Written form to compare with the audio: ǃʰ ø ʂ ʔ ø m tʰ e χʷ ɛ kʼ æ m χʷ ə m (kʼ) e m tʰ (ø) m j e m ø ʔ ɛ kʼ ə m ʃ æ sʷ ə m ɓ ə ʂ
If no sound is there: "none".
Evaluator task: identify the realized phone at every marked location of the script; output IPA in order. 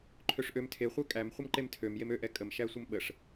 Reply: ǃ, ø

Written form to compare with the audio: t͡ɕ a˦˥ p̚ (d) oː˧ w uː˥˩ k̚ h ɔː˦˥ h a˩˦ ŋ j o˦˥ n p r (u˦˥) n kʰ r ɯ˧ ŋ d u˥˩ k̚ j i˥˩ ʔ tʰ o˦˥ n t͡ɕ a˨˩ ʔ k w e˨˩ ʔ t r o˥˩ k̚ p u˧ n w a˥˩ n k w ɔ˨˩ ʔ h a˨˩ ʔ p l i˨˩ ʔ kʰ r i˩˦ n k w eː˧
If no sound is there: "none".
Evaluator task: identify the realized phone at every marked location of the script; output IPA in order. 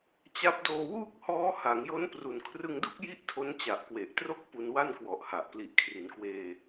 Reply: d, u˨˩

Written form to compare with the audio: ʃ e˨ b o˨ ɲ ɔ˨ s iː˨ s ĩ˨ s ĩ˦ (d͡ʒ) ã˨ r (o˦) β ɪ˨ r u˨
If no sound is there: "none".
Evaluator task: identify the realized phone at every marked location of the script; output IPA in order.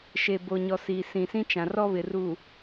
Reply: t͡ʃ, ɔ˦

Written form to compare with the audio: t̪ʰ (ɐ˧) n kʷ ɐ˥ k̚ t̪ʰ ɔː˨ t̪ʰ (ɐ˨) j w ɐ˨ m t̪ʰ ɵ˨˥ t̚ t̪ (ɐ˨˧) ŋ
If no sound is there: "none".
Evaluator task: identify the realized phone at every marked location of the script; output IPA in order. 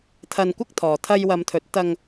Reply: ɐ˧, ɐ˧, ɐ˧

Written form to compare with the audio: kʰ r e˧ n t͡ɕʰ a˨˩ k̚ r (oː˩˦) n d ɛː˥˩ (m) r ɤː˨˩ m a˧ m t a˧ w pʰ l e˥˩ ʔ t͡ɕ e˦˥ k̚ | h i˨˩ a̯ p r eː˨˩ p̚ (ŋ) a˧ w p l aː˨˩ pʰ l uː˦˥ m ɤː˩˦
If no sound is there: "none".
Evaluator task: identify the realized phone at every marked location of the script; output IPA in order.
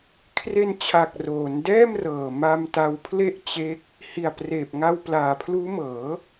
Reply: oː˩˦, m, ŋ

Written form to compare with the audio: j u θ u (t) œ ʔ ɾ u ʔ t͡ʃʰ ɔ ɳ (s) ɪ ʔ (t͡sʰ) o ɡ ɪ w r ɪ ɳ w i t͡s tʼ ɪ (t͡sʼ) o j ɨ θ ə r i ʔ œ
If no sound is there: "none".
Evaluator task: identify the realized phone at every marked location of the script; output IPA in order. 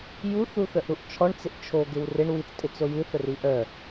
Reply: θ, t͡s, t͡ʃʰ, t͡s

